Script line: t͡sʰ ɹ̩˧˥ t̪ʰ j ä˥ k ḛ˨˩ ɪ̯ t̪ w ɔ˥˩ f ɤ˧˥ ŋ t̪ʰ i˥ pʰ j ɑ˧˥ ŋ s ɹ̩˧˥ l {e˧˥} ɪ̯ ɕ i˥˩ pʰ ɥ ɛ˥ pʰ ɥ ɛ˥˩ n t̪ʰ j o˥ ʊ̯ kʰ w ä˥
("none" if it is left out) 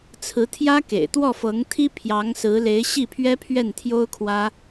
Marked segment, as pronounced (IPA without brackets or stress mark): e˧˥